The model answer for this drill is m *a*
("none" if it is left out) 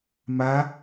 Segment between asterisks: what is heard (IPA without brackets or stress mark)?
a